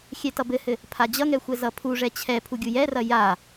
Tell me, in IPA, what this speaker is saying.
xʲɛtʌbɘhɘ | pʰad͡ʑʌŋɛ xʷɛzʌpʰuʐɛ t͡ɕʰɛpʰu ɡʲujɛrɐ ja

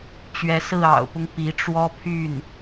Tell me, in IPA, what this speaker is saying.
t͡ɕɥɛ˧˥sɹ̩˥˩ ɑ̰˨˩ʊ̯pʊ˦ŋ pi˧˥ʈ͡ʂwɔ˥ pʰy˥˩n

